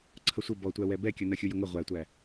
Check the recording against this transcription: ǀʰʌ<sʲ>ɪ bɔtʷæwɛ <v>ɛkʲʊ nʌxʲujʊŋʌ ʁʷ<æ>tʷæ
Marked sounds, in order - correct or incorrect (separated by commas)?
incorrect, incorrect, correct